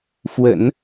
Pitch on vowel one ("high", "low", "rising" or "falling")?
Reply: low